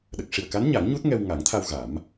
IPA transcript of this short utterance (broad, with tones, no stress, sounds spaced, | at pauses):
ɗ ə˨˩ k̚ ʂ i˨˩ ə̯ k a˧˥ n ɲ a˨˩˦ ŋ ɲ u˦˥ t̚ ŋ ɛ˧ w ŋ a˨˩˦ ŋ t̪ʰ a˧ w ɣ a˨˩˦ m